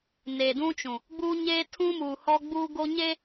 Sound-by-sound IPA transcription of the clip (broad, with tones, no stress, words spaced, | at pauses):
ne˨dũ˦t͡ʃũ˨ | ɡ͡buː˦ɲeː˦ tʰũ˦muː˨hɔ˦ ɡ͡buː˦ɡo˦ɲe˦